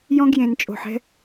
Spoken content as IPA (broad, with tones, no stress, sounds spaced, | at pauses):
j ɔ̃˦ ɡ j ẽ˨ n t͡ʃʼ o̤˨ ħ ɛ̤˦